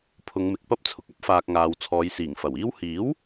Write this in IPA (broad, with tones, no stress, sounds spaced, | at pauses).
pʰ ʊ˨˧ ŋ m ɪ˨ k̚ p ɐ˥ p̚ t͡sʰ ʊ˨ k̚ ɐ˥ p̚ f aː˨ k̚ ŋ aː˨ w t͡sʰ ɔː˨˧ j s iː˨˩ ŋ f ɐ˨˩ w iː˥ w h iː˨˥ w